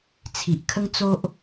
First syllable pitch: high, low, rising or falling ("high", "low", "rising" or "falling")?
low